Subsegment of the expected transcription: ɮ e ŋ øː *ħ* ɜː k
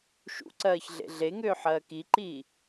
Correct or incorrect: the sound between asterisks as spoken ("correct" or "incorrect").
correct